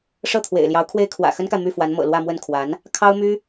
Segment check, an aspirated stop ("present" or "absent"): present